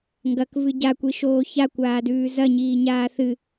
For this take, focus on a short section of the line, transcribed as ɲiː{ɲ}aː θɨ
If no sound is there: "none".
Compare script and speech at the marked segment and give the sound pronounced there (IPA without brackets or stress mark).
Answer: ɲ